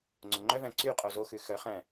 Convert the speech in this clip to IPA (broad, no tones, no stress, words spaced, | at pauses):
ŋ͡ǀoŋ͡ǃœvæ̃ ǀy qʼozoxʉ xœχæ̃